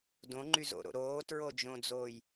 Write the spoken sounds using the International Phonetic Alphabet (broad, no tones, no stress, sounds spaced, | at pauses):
d õ ŋ͡ǃ y z o̰ ɾ o̰ ɾ oː t ɹ o d͡ʒ õ d͡z oː j